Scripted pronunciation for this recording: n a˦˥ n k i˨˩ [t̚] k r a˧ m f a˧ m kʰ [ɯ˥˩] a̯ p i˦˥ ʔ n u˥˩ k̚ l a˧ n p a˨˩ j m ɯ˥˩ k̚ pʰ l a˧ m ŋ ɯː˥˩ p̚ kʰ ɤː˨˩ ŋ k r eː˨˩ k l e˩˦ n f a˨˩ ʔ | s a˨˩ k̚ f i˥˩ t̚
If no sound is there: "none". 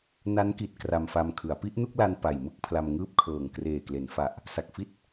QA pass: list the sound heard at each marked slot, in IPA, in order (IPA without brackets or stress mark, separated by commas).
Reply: t̚, ɯ˩˦